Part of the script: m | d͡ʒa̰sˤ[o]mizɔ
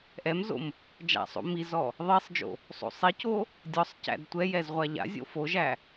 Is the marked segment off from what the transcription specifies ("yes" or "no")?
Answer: yes